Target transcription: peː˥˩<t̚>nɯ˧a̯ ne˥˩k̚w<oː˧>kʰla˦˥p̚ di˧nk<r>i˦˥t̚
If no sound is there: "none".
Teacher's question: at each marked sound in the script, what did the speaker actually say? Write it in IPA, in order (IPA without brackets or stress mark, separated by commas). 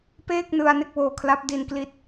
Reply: k̚, oː˧, l